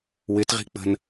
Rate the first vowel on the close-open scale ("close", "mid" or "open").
close